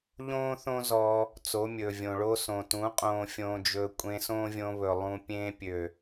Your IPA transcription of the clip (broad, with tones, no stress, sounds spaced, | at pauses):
ʎ õː˦ θ õ˦ z ɔ˧ | t͡s o˨˦ mʲ ɵː˨ vʲ õ˨ ɭ o˦ s õ˨ t ũ˨˦ qʼ õː˧ fʲ õː˧ d͡ʒ ɵː˧ kʷʼ ẽ˧ s õː˦ vʲ õ˧ β ɵ˨ lˠ ũ˧ pʲ ẽː˧ pʲ ø˨